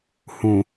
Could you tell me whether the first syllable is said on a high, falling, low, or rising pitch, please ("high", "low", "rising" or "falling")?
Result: low